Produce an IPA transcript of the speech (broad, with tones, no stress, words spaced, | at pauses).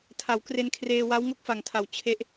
tʰa˩˦wkre˧nkʰreː˧ wa˦˥w ŋo˥˩k̚fa˨˩ŋtʰa˩˦w t͡ɕʰe˦˥ʔ